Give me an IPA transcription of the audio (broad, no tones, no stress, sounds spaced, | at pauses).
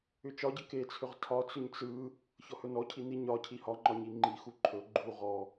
ʏ t͡ʃ ɒ ɟ ə k e t͡sʰ ʏ ʁ tʰ ɒ t͡s ʏ ɲ t͡s ɯ | ç ɔ h ɵ n ɔ cʰ i n i ɲ ɒ cʰ i h ɒ ŋ͡ǃ ɒ ɲ i ŋ͡ǃ i x u ǃʰ ɵ ɡ͡ǃ u ʁ ɔ